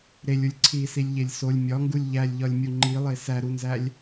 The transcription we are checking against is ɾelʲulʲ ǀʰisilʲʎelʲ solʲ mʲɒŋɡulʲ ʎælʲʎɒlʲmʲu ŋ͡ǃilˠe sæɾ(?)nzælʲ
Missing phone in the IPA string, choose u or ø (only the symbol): u